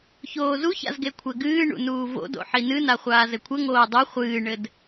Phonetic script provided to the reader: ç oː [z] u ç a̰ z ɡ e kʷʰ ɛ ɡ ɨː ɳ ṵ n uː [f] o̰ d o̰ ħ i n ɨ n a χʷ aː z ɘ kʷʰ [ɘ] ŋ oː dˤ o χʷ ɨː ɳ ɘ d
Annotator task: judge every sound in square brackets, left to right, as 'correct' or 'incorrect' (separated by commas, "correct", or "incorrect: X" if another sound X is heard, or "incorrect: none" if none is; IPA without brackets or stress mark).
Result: correct, incorrect: v, correct